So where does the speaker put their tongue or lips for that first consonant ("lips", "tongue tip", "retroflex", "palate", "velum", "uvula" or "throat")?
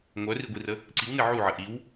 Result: velum